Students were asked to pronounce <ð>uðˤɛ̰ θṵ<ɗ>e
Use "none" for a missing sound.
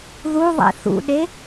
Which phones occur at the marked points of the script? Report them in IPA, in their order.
ð, ɗ

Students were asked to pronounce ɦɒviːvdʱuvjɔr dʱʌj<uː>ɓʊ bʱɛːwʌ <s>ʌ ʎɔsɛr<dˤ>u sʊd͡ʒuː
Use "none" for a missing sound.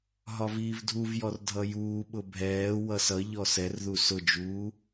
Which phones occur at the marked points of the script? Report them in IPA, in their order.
uː, s, ð

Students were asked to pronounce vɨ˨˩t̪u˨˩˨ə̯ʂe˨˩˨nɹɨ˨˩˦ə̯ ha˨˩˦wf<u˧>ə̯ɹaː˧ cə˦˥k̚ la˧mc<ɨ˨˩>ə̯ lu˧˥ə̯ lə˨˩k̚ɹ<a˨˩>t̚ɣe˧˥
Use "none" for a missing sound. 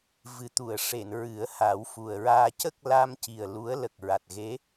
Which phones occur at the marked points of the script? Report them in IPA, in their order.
u˨˩, i˨˩, a˨˩

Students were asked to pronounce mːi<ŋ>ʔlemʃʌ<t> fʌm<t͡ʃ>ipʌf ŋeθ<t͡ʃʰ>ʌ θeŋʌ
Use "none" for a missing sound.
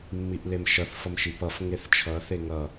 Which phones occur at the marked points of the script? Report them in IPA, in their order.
none, θ, ʃ, t͡ʃʰ

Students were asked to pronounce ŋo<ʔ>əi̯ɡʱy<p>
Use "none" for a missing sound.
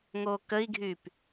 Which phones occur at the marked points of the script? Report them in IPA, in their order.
k, p

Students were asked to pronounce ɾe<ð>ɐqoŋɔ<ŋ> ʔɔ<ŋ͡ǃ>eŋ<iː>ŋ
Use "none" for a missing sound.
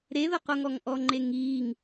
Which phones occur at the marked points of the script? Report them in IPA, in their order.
ð, ŋ, ŋ͡ǃ, iː

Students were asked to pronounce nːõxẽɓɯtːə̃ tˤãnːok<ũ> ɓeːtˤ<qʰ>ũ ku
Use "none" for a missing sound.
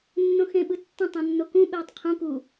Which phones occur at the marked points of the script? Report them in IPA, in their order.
ũ, qʰ

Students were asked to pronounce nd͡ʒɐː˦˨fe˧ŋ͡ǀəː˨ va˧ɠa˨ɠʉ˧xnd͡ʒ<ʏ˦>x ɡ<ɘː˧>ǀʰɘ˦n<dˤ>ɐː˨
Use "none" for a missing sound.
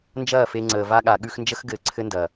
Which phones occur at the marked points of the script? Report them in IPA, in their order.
ə˦, ɘː˧, d

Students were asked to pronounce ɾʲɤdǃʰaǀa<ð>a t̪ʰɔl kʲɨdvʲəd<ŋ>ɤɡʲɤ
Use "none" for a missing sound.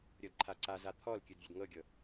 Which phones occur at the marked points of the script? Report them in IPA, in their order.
z, ŋ

